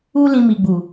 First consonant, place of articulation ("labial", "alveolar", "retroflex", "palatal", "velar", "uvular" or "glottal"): alveolar